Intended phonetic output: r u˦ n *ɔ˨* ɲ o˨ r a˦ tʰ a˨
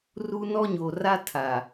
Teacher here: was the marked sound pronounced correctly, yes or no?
no